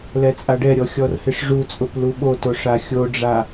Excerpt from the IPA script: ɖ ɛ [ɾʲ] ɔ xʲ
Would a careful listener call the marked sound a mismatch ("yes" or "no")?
no